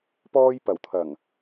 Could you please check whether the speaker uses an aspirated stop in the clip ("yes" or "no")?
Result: yes